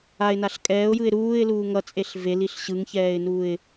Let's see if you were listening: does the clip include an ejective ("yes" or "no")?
yes